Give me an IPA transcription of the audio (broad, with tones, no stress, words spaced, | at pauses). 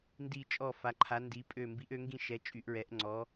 ndi˥˧ t͡ʃʼɔ˥˧fa˧˥ǃʰa˧˥ndi˧˥ pʼø˥˧ mbi˧˥ʔø˧˥ŋɡĩ˥˧ ʃɛ˧˥ t͡ʃʼy˧˥ʔɹɛ˧˥ʔŋ͡ǀɔ˧˥